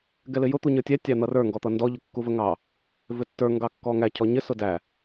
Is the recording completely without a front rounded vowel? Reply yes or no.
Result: yes